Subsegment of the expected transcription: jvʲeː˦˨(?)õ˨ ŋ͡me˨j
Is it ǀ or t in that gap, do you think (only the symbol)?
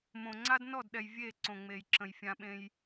ǀ